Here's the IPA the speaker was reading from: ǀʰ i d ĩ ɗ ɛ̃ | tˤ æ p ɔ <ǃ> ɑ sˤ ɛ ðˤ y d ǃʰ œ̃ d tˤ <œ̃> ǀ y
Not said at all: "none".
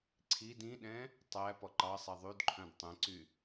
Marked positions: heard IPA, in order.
ǃ, ɛ̃

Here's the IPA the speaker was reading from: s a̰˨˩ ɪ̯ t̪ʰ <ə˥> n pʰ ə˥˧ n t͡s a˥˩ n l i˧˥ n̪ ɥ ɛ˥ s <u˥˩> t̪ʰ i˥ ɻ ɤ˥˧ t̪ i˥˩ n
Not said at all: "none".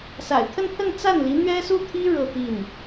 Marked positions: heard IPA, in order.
ə˥˧, u˥˩

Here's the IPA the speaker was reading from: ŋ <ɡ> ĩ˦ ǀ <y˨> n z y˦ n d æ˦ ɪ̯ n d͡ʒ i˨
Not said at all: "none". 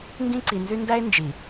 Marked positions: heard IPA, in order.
ɡ, i˨

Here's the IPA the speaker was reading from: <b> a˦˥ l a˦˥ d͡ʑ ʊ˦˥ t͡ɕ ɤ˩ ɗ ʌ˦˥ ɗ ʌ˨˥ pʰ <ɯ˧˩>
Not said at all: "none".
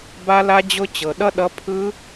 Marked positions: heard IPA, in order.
b, ɯ˦˥

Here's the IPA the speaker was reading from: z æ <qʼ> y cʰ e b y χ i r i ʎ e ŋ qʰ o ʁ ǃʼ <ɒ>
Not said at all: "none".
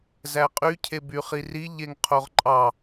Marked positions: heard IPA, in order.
qʼ, ɑ

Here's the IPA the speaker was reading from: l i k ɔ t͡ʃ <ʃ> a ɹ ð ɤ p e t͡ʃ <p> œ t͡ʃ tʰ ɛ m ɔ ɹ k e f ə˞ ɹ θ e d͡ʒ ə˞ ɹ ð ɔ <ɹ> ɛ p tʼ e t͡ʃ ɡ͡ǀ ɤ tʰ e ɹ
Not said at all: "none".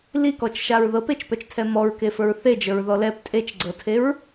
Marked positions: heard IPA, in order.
ʃ, p, l

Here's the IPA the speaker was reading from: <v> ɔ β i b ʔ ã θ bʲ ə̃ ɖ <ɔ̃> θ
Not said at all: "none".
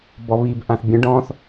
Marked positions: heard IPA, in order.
b, ɔ̃

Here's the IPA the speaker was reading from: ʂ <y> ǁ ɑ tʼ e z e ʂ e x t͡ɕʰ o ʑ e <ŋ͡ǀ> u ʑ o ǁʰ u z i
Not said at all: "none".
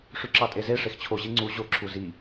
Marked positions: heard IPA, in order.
y, ŋ͡ǀ

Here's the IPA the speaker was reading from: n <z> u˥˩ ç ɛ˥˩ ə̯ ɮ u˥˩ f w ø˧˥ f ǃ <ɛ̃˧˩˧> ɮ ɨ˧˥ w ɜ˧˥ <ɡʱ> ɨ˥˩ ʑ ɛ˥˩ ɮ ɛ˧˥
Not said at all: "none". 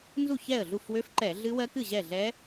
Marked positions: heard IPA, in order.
z, ɛ˧˩˧, k

